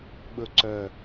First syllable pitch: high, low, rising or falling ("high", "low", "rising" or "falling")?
low